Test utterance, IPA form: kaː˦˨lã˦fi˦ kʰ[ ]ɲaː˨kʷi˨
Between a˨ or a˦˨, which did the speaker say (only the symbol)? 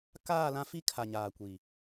a˨